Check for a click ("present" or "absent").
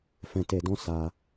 absent